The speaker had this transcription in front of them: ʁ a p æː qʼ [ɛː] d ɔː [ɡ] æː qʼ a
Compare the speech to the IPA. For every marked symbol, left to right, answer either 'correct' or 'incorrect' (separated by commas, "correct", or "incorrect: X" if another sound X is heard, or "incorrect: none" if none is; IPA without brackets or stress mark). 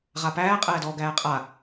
correct, correct